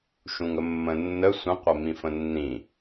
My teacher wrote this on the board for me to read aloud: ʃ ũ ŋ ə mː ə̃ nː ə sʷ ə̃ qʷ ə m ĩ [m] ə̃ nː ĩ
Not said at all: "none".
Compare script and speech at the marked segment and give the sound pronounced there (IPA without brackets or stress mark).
f